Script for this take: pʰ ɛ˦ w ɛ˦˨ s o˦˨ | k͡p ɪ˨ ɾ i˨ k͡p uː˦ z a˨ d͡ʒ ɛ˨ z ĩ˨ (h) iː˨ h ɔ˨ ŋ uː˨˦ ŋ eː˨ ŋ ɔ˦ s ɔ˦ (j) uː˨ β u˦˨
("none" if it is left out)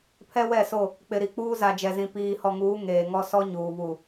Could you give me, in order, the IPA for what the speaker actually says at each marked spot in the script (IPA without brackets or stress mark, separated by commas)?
p, ɲ